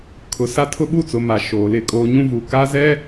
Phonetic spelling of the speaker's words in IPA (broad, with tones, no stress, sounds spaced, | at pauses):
kʰ ʊ˨ s a˦ tʰ ʊ˦ ɓ u˦˨ t͡s ʊ˨ m a˨ ʃ oː˨ l ɪ˦˨ kʼ oː˦ ɲ ũ˦ v u˨ k a˦ z ɛ˦